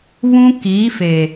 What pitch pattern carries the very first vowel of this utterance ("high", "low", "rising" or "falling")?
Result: high